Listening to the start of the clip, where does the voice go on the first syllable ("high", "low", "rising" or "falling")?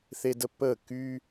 high